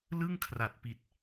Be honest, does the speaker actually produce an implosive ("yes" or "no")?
no